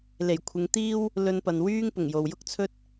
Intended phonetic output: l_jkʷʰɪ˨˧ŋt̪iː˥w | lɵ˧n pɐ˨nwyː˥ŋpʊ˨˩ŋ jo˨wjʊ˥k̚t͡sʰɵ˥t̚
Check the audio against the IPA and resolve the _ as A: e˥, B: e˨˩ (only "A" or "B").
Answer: B